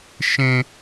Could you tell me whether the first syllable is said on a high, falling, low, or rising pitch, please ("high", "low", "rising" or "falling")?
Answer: high